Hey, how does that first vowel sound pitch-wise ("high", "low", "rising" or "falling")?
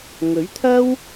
rising